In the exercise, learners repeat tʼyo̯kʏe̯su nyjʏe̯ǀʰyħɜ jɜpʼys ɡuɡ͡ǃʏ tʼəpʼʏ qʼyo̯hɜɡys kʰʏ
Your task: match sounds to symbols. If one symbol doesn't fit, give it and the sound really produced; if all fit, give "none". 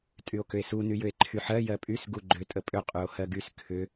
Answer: ǀʰ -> ǃʰ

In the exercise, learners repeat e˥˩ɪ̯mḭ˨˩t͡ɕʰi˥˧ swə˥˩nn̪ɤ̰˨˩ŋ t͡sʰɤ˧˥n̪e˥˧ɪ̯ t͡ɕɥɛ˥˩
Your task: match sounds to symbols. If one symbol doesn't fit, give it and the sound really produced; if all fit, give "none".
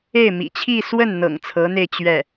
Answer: none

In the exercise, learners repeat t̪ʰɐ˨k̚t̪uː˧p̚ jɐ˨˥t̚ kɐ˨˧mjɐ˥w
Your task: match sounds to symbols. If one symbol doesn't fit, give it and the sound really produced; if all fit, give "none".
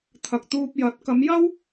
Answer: none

